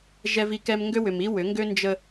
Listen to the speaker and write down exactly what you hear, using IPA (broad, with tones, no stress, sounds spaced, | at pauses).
ʒ ɛ˦ v i˦ k ɛ˦ m ŋ ɡ ø˦ w ʏ˨ m i˦ w ʏ˨˦ ŋ ɡ ø˦ n d͡ʒ ə˦